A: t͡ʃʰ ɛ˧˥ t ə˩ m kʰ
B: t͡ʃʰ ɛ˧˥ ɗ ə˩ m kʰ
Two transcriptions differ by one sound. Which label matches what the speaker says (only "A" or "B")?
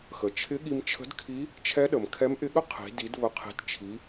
B